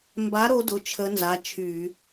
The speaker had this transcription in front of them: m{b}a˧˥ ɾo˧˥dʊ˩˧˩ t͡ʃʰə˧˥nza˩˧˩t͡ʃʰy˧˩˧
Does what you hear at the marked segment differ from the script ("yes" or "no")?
no